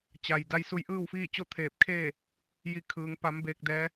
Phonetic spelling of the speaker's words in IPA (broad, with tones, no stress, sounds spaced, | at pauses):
t͡ɕ a˩ j d a˧ j s u˧ j ʔ ɯː˥˨ w f iː˥˨ t͡ɕ o˥˨ t̪ʰ eː˧˩ p̚ kʰ eː˥˨ | j i˧ kʰ ɯː˩˧ ŋ p a˩˧ m b eː˧ k̚ d ɛː˧˥